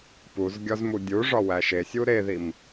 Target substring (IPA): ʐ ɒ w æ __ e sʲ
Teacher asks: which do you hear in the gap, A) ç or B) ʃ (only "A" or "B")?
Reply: B